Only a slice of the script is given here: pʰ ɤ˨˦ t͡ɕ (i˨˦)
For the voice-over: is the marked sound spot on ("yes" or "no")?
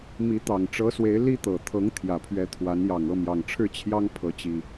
no